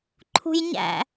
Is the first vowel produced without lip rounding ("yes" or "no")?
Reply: no